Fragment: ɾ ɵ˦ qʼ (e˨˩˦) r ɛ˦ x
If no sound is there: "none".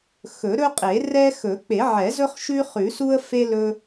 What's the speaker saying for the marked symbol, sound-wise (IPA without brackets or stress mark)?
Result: e˨˩˦